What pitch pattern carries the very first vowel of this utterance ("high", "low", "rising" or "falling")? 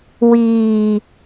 low